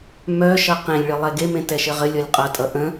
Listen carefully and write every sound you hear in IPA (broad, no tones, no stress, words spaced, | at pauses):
mœʃʌ qẽlʲɭɘ lˠɛɡemẽ tɛʃɘʁɘlʲɔlʲ qʼʌtʼʌ ʔə̃